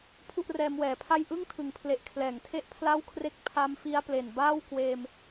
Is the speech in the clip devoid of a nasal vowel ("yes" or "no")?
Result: yes